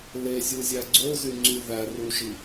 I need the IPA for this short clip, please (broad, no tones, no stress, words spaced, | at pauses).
lezʲuzʲæ ɡ͡ǀozyŋ͡ǀy ðæruʒi